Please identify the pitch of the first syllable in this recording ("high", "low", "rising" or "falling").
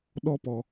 high